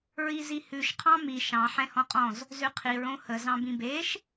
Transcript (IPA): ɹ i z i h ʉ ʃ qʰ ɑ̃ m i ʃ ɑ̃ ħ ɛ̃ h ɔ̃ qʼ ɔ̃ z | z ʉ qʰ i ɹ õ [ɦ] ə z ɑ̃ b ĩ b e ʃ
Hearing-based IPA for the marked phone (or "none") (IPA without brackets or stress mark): h